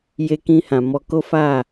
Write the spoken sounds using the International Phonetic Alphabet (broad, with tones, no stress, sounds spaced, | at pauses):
j e˧ k ĩ˧ h ã˨ m ɔ˧ k o˦ f a˦˨